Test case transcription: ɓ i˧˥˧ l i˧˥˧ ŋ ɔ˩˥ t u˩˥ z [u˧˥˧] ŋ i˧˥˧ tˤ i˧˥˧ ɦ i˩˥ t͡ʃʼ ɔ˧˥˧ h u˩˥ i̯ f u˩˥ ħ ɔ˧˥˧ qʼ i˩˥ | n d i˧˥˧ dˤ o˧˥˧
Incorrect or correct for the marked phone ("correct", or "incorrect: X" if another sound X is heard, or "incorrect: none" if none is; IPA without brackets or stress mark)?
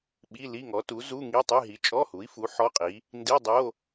correct